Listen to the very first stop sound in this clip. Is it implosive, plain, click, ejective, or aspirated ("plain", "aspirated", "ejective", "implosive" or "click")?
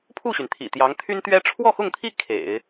aspirated